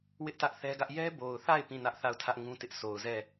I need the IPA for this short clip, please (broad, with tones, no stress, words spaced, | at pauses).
wɪ˦ʔtä˦ʔθɛ˦ɡä˦ʔ jɛ˦ bo˨ʊ̯θa˦˨ɪ̯ pĩ˦˨nä˦ʔθa˦˨ʊ̯tʰä˦ʔ ŋũ˦tɪ˦ʔ so˨ʊ̯zɛ˦˨